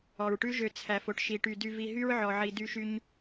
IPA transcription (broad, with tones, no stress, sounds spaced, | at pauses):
ɔ˨ ɹ ʈ ʉ˦ ʒ ø˧ t͡sʰ æ˨ f o˦ ʈ ʃ i˨ ʈ y˨ d y˧ v i˧ ɦ y˦ ɹ ʕ ɔ˨ ʕ i˨ d y˧ ʃ y˧ ɲ